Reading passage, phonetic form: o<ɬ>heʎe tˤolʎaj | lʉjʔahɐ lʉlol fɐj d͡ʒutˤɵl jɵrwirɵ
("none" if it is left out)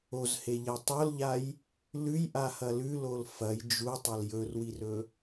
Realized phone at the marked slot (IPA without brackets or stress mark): z